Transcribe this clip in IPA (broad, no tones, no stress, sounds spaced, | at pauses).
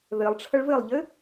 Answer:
ð ɘ lˠ ʈ͡ʂʰ ə ɭ v ɘ lˠ ʎ ɘ